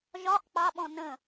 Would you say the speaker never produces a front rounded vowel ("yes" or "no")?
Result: yes